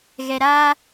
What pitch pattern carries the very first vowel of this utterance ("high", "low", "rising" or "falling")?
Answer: low